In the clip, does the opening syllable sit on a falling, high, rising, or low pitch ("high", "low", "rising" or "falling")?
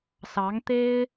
rising